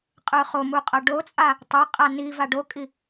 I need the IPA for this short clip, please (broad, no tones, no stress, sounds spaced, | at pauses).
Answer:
qʼ ɯ χ o m u qʼ ʌ ɖ o t͡sʼ a | tˤ e qʼ a n i v a ɖ o kʼ i